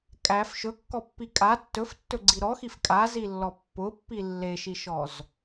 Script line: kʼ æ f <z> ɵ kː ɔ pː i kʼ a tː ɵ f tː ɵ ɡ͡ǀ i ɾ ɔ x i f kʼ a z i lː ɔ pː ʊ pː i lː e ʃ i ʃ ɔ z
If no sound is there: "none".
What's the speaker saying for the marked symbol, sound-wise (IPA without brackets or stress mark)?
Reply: ʃ